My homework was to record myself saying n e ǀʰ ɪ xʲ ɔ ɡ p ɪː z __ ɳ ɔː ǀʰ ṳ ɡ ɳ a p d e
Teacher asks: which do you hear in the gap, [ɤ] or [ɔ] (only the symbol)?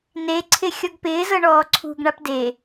ɤ